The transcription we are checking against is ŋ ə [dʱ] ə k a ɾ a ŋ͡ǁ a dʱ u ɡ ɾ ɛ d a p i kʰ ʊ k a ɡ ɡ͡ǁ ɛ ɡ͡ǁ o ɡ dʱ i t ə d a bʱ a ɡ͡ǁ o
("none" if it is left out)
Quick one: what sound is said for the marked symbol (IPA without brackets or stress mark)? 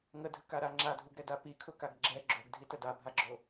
dʱ